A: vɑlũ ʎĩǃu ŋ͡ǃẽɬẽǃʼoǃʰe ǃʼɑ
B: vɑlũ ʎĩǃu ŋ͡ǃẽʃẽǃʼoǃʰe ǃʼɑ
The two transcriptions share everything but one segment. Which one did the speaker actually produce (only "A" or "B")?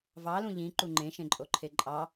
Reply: B